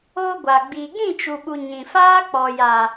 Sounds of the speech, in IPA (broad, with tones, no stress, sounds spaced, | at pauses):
oː˧ ɡʷ a˨ ɡ͡b iː˨ ɡ ĩ˦˨ t͡ʃ u˨ ɓ u˨ ɲ ĩ˨ f aː˦ k͡p ɔ˨ j a˨